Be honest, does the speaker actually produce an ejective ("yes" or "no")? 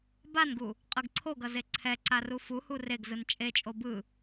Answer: yes